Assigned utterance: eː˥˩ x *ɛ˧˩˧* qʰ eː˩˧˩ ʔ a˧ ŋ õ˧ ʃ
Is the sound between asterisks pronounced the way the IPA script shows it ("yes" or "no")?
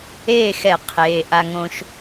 yes